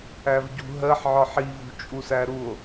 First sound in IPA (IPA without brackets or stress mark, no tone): æ